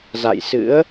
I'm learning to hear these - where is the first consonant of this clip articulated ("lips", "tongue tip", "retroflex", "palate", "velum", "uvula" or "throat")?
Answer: tongue tip